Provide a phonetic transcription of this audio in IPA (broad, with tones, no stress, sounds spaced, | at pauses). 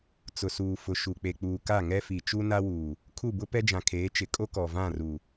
t͡s ʊ˨ s uː˨ f ʊ˨ ʃ u˨ k͡p e˨ k͡p uː˨ k a˦˨ ŋ ɛ˦ f i˨ t͡ʃ u˦ n a˦ w uː˨ | kʰ u˦˨ b ʊ˦ p ɛ˦ d͡ʒ ã˨ kʰ eː˨˦ t͡ʃ ɪ˨ kʼ o˦ k ɔ˨ v ã˦˨ r u˨